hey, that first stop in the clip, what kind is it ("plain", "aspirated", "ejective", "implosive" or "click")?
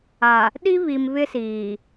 implosive